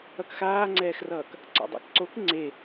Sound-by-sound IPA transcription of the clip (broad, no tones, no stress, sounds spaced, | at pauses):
ʌ k x aː ŋ͡ǀ ɛː x r ʌː k | ǀ a̰ dˤ a̰ k ǀ o k ŋ͡ǀ e